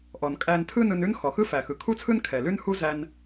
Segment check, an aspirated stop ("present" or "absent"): present